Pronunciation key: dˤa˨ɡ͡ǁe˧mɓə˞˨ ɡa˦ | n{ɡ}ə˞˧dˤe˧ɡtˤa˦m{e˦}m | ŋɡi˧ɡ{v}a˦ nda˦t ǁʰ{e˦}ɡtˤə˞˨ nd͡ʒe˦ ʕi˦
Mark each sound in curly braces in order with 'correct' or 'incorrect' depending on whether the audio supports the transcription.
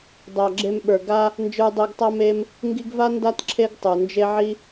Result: incorrect: d͡ʒ, correct, correct, correct

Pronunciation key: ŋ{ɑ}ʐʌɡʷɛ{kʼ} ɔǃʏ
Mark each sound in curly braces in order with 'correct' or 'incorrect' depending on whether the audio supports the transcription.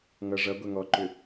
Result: incorrect: ʌ, incorrect: ŋ

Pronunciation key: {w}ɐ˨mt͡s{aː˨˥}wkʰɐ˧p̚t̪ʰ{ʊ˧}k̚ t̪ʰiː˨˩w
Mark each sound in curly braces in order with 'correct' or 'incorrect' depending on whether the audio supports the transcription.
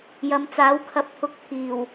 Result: incorrect: j, correct, correct

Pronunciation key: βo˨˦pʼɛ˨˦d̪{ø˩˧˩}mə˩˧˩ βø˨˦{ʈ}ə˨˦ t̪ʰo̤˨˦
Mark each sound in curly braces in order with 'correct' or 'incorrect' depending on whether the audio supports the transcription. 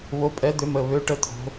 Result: incorrect: ø˨˦, correct

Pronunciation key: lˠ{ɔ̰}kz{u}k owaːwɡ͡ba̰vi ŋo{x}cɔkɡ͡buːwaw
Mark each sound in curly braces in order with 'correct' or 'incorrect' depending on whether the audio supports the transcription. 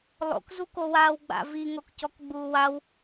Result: incorrect: o̰, correct, incorrect: k

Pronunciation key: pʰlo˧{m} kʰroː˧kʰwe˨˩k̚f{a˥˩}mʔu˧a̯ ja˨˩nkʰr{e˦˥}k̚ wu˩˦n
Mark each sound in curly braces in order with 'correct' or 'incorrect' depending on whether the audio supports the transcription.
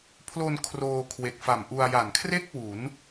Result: incorrect: n, incorrect: a˨˩, incorrect: e˥˩

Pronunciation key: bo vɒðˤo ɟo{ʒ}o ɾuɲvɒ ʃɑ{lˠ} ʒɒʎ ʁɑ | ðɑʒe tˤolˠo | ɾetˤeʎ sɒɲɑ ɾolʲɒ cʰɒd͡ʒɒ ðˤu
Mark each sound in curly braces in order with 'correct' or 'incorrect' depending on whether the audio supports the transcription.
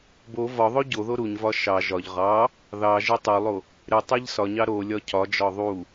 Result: incorrect: ð, incorrect: none

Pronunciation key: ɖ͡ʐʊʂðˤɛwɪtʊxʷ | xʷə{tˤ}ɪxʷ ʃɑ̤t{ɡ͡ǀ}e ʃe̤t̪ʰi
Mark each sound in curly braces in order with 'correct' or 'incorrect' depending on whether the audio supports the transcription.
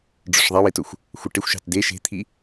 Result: incorrect: ʈ, incorrect: d

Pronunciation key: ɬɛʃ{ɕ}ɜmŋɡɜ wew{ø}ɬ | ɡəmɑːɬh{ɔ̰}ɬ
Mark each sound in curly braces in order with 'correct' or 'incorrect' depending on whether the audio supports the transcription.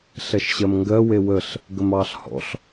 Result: correct, incorrect: ə, correct

